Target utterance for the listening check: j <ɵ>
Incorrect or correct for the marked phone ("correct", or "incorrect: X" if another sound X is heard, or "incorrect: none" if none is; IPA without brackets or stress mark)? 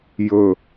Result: correct